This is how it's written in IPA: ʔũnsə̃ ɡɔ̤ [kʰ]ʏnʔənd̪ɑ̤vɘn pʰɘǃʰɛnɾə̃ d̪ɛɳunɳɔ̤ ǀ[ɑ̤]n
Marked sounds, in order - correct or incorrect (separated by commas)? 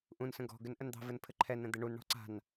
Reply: incorrect, incorrect